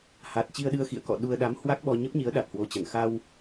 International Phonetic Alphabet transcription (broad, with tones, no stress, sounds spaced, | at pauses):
h a˨˩ t̚ t͡ɕ i˧ ə̯ ɗ ɨ˧ ə̯ x ḭ˧˨ ə̯ k ɔ̰˧˨ ɗ u˧ ə̯ ɗ a˨˦ m h w a˦˥ k̚ ɓ ɔ˧ ɲ ə˦˥ p̚ ɲ i˨˦ ə̯ ɗ a˨˩ t̚ h w o˨˦ t͡ɕ ə˧˩ n x a˧ w